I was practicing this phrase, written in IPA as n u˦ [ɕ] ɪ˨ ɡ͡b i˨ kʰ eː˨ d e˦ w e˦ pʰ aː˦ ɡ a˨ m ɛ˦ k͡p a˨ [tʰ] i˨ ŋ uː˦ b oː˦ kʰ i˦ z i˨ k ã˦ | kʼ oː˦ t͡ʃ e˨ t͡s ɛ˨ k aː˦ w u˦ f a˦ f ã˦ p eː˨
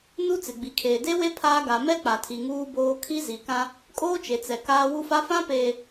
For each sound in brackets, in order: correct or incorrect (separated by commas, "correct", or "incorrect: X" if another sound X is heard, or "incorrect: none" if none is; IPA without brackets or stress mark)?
incorrect: t͡s, correct